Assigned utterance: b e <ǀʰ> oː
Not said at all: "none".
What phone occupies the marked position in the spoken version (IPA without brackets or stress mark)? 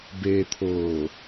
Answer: t̪ʰ